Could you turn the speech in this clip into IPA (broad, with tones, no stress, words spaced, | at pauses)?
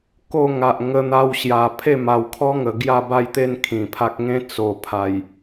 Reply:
ko˥˧ŋa˨ʔ ŋə˧n̪a˧wɕja˨˩ pʰe˥˧ ma˨˩wkʰɔ˦ŋə˨˩ ɡja˥˧ba˥˧jt̪e˥˧n kʰĩ˨˩pʰa˦k̚ ŋẽ˦t͡so˨˩pʰa˨˩j